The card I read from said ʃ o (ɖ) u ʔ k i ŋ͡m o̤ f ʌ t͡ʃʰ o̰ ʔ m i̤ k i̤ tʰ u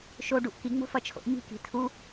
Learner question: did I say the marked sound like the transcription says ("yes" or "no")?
yes